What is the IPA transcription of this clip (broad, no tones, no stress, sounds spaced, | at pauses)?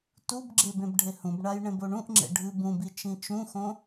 t u b ɡ͡ǁ e b ẽ b ɖʱ e h ũ b ɳ a j ɳ ẽ b o ɳ ũ ʔ ŋ͡ǁ ḛ ɖʱ ɨ b ũ b i t͡ʃ ĩ t͡ʃ ũ x õ